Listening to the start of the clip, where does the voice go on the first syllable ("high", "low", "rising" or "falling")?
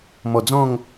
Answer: low